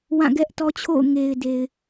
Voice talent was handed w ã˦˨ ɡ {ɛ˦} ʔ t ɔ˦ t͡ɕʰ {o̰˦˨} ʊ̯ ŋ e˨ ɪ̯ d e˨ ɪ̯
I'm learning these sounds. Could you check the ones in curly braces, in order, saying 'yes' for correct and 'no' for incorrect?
yes, yes

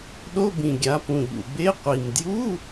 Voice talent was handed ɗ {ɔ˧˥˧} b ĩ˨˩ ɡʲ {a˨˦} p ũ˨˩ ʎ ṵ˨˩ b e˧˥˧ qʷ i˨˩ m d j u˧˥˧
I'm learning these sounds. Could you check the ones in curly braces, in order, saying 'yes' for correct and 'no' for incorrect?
no, yes

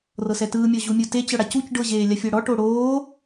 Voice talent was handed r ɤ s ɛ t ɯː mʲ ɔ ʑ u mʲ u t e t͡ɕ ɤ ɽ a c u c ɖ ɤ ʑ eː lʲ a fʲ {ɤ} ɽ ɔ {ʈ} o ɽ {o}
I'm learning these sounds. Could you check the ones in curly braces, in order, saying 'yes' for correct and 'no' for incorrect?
yes, yes, no

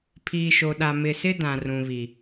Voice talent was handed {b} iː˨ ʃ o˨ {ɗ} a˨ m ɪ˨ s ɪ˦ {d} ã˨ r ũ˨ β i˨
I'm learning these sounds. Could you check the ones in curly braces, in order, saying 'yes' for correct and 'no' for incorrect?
no, yes, yes

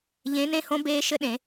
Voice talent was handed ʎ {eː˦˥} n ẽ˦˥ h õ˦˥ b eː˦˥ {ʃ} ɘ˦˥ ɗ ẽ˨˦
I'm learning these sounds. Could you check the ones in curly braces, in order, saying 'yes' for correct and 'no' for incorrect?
no, yes

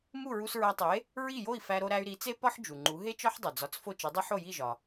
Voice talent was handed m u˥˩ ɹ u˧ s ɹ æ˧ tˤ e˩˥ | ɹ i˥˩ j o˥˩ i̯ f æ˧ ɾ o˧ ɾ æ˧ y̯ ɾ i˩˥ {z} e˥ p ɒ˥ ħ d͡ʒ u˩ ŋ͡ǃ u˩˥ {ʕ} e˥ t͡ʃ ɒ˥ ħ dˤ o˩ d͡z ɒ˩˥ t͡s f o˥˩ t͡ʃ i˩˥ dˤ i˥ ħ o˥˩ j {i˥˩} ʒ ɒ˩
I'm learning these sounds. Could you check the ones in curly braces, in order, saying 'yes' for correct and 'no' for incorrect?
no, no, yes

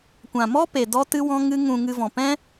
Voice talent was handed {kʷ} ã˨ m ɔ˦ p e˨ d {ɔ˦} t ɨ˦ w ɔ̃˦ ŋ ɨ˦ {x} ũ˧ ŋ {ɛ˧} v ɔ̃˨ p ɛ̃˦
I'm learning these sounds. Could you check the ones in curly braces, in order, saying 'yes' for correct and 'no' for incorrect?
yes, yes, no, no

